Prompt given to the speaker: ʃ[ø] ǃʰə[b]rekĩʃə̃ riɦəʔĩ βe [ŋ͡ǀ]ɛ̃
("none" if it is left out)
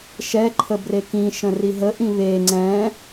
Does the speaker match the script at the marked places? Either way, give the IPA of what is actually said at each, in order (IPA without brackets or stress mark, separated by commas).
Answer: ɛ, b, ŋ͡ǀ